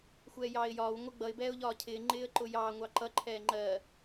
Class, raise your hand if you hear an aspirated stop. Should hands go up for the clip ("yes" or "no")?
yes